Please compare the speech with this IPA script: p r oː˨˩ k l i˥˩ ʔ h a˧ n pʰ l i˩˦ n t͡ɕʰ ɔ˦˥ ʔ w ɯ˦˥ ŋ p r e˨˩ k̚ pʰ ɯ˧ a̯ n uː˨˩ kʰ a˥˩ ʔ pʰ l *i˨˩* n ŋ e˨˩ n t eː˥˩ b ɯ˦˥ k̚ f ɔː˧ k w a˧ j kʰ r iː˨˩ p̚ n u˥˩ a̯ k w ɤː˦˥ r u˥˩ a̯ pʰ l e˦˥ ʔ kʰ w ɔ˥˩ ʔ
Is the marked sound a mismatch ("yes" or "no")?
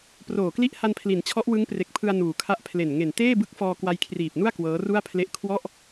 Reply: yes